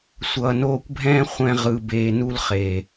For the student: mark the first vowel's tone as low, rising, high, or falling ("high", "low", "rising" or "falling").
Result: low